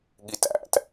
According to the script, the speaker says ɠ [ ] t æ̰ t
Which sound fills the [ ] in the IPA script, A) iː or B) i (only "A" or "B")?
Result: B